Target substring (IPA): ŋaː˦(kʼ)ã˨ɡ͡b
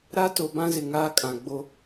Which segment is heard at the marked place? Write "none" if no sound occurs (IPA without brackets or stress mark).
kʼ